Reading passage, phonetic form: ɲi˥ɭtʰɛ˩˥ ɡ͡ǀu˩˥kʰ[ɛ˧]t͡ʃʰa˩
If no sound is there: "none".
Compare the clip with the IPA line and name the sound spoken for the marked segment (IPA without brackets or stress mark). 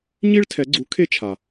e˧